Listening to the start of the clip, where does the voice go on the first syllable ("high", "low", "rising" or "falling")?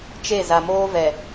falling